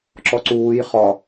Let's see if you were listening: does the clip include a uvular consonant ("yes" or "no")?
yes